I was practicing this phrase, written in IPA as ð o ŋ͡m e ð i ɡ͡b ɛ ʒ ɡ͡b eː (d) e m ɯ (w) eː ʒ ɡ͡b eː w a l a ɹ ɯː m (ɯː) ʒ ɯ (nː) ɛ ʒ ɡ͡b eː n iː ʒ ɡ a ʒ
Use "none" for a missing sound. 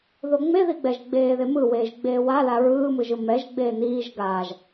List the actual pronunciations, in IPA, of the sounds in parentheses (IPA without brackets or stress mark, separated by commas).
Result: ð, w, ɯ, m